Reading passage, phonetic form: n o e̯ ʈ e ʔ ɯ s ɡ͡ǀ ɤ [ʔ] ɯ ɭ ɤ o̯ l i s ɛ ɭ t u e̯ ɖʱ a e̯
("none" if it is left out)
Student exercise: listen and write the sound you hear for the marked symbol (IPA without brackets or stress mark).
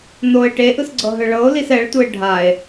ɦ